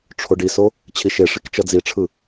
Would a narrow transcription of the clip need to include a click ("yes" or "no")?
no